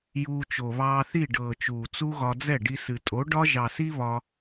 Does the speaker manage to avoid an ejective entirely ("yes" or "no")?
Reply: no